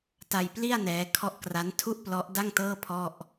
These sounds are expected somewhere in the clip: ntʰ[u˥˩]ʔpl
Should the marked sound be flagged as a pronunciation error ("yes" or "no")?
no